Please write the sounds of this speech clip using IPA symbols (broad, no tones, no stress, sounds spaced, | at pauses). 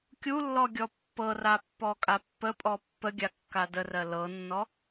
kʲ u lː ɔ ɡʲ ɔ pː ɤ r a pː ɔ kʼ a pː ə pʼ ɔ pː ə ɡʲ a kː a d ə r ɜ l ɤ nː ɔ